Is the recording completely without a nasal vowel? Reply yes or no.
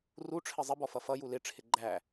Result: yes